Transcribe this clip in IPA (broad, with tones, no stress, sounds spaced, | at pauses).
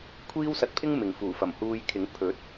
kʷʰ iː˥ w s ɐ˧ t̚ pʰ ɪ˥ ŋ m ɪ˨ ŋ f uː˨˩ f ɐ˨˩ m h uː˧ j kʰ ɪ˨˥ ŋ pʰ ɵ˨˥ t̚